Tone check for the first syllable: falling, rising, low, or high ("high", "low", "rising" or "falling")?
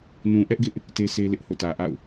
low